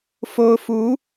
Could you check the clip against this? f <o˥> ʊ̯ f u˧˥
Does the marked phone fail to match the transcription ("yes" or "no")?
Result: no